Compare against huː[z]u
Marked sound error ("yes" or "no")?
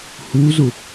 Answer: no